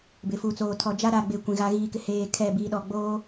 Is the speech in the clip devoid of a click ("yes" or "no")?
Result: yes